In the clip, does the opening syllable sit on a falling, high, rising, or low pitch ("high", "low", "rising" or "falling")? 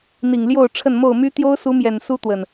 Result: low